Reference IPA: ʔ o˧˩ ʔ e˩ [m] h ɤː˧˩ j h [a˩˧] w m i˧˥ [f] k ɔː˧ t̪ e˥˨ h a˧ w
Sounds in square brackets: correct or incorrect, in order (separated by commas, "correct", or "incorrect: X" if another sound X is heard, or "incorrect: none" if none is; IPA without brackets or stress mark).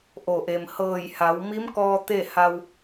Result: correct, correct, incorrect: m